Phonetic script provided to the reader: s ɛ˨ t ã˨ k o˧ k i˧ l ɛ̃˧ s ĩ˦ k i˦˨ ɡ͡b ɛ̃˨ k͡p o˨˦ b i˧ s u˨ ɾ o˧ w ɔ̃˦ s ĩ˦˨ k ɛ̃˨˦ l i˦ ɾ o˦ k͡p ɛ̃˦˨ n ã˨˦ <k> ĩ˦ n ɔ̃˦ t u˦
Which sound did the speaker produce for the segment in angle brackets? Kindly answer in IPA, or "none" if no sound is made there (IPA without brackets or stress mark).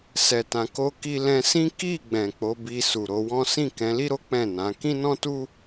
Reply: k